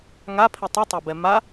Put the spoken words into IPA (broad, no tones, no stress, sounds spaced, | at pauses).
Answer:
ŋ a pʰ i tˤ u tˤ æ b ɛ m a